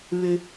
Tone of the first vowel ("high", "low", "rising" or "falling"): low